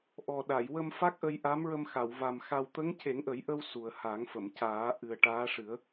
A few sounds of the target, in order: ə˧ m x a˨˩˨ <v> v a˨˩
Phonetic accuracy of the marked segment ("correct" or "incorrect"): incorrect